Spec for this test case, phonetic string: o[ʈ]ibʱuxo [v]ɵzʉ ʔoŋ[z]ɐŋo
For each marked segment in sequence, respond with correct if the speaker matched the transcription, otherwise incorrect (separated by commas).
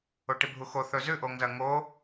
correct, incorrect, correct